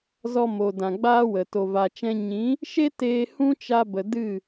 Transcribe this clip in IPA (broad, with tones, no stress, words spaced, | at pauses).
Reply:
zɔ˧mo˨dã˨ ɡ͡baː˦wə˨ to˨va˨t͡ʃɛ̃˧ ɲĩ˨˦ | ʃe˦ teː˧ hũ˦t͡ʃa˧bə˨ dɨ˦˨